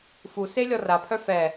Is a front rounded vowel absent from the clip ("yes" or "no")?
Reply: no